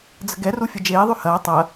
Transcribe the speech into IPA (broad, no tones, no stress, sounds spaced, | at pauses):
d͡z ə̤ ɡ ɛ r u fʲ ɐ d͡ʒ eː ðˤ ʉ h ɐː tˤ ɐ